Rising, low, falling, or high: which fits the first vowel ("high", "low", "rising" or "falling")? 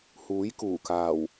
rising